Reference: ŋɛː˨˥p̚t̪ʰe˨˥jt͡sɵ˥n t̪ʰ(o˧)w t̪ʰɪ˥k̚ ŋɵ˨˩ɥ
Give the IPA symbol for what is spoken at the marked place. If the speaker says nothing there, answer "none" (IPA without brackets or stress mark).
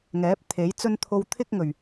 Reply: o˧